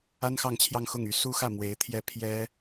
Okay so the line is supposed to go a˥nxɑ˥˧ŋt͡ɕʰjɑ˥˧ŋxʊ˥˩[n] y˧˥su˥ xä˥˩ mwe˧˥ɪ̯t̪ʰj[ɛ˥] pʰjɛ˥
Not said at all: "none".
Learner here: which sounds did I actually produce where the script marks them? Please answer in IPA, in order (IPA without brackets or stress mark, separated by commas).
ŋ, ɛ˥˩